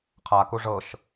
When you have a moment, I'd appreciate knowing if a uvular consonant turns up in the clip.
yes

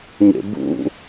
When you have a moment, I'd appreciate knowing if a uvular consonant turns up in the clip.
no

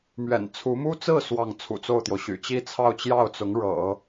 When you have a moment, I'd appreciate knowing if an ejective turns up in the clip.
no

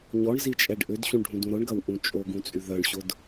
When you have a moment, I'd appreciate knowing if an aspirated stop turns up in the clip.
no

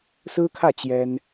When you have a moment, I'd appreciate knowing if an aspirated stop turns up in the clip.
yes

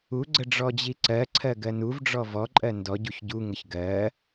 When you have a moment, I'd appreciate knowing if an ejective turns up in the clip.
yes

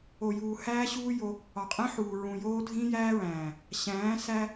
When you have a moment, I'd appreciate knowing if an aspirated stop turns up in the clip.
no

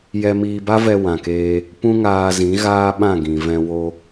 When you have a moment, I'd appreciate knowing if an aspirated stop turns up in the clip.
no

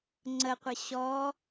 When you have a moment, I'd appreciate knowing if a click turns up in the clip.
yes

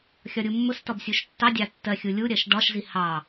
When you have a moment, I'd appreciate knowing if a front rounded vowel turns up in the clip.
no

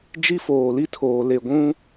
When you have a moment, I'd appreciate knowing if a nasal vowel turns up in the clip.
yes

